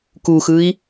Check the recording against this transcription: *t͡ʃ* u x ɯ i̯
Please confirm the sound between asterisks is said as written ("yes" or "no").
no